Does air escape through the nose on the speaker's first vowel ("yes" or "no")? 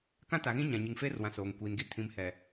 yes